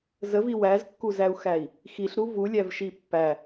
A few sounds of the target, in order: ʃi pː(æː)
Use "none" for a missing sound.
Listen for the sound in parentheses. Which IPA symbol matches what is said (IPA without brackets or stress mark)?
æ